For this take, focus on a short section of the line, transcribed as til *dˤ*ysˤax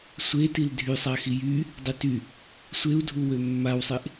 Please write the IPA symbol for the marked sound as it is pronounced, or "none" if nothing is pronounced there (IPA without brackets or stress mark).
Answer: dʱ